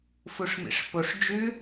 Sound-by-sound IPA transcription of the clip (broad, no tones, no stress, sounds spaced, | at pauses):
f u ʂ m ḭ ʂ p o ʂ d͡ʒ ʉ